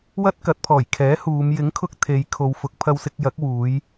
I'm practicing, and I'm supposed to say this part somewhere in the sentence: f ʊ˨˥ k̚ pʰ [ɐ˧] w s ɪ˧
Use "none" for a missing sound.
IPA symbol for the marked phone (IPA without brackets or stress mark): ɐ˧